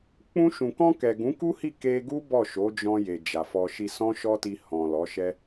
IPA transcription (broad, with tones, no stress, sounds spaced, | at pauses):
k͡p ũ˧ ʃ ũ˨ k ɔ̃˧ k ɛ˨ ɡ ũ˨˦ k u˦ h i˦˨ k e˧ ɡ u˦ b ɔ˦˨ ʃ o˨˦ d͡ʒ ɔ̃˧ j e˨ d͡ʒ a˨ f ɔ˧ ʃ i˧ s ɔ̃˦ ʃ ɔ˦ t i˧ h ɔ̃˨ l ɔ˨˦ ʃ ɛ˦